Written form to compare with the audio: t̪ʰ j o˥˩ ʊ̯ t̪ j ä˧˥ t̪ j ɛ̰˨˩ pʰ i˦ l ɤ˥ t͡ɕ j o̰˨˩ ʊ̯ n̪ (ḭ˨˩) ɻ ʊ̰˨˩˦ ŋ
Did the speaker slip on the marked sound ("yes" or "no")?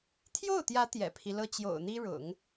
yes